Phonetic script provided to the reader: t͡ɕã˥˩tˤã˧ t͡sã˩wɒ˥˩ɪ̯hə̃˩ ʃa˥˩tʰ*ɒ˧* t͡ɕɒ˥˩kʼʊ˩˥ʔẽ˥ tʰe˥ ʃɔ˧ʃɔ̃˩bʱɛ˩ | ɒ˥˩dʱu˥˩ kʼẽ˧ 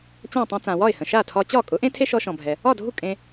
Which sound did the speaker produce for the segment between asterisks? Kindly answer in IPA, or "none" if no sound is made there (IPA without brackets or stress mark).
ɒ˧